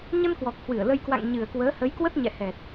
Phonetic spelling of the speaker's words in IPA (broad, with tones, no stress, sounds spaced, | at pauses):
ɲ ə˧ n k w ɔ˨˩ k̚ h w ɨ˧˩ ə̯ l ə˧ j k w a̰˧˨ ŋ ɲ ɨ˨˩ ə̯ k w əː˨˦ h ə˨˦ j k w ə˦˥ t̚ ɲ ɛ̰˧˨ h ɛ˨˩ t̚